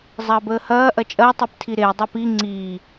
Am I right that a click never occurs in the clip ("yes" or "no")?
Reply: no